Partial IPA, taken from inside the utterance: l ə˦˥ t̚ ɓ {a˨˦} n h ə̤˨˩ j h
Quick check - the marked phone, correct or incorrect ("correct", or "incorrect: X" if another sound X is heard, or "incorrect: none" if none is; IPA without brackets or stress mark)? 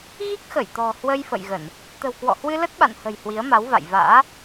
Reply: incorrect: a̰˧˨